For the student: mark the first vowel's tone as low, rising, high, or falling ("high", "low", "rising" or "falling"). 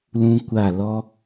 high